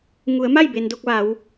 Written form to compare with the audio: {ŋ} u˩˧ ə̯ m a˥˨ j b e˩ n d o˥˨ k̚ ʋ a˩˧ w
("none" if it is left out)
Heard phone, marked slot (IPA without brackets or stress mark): ŋ